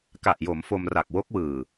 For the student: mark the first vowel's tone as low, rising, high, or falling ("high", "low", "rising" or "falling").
low